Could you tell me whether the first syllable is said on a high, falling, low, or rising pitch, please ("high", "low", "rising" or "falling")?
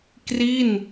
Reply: falling